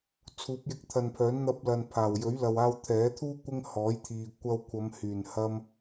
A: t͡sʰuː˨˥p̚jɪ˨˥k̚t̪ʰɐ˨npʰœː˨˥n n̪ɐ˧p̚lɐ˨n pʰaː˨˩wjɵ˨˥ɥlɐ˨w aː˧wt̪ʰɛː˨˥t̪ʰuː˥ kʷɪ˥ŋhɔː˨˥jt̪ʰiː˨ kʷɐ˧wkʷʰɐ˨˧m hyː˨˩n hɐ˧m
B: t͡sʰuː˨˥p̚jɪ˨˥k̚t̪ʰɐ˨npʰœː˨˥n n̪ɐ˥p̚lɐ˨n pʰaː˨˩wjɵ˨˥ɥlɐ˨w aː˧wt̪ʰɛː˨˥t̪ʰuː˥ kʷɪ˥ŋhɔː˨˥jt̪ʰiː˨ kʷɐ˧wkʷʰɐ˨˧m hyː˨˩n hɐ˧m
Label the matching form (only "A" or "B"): A